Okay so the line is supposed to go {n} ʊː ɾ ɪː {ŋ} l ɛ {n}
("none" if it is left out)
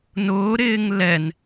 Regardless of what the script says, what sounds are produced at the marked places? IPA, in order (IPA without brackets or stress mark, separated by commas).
n, ŋ, n